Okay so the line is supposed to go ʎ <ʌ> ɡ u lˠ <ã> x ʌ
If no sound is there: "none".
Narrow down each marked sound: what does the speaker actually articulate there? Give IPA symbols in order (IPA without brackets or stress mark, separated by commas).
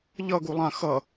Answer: ʌ, ã